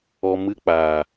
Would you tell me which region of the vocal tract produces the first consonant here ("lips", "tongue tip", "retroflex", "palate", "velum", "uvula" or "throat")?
lips